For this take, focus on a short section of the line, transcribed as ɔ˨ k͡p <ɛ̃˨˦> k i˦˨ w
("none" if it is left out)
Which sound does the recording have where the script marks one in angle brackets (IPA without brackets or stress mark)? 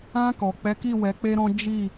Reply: ɛ˨˦